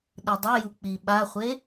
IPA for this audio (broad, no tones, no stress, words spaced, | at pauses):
ɗɯdˤɘju k͡piɓaχʷe